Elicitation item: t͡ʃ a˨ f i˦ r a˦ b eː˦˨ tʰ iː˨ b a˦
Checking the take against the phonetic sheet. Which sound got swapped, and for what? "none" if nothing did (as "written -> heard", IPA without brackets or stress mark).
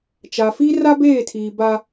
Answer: none